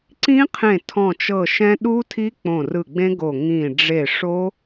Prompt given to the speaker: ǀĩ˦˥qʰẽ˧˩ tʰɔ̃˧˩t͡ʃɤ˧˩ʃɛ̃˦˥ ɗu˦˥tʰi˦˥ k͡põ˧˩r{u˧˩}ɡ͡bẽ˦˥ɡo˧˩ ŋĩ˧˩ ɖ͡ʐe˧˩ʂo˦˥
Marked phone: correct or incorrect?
incorrect